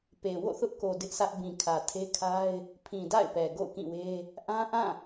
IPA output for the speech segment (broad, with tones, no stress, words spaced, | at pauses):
pe˨ wo̰˦˨θʊ˦ʔko˨ dɪ˦ʔsʰä˦ʔ bĩ˨kʰä˨tʰe˦kʰa˦ɪ̯ | pʰĩ˨da̰˦˨ɪ̯ pɛ˨ ɡo̰˦˨ʊ̯kĩ˦˨we˦ | ʔã˦ʔã˦˨